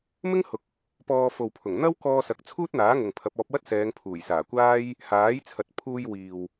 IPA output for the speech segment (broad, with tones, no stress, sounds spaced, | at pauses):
m ɪ˥ ŋ h ʊ˨ k̚ | p ɔː˧ f o˨ w pʰ ʊ˨˩ ŋ n̪ ɐ˥ w k ɔː˧ s ɐ˨˥ k̚ t͡sʰ uː˥ t̚ n̪ aː˨˥ ŋ ʊ˨ ŋ pʰ ɐ˨˥ p̚ ɔː˨˥ p̚ w ɐ˥ t̚ s ɛː˨˧ ŋ pʰ uː˨˩ j s aː˨˩ kʷ aː˥ j | h aː˨˥ j t͡sʰ ɐ˨ t̚ pʰ uː˧ j w iː˨ w